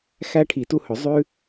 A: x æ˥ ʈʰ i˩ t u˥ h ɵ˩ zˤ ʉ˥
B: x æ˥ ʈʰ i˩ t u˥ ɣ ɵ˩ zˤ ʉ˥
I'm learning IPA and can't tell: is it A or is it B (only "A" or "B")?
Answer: A